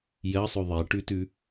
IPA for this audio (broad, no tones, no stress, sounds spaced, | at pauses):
j ɜ sˤ ʉ ðˤ e ʈ ʉ t ʉ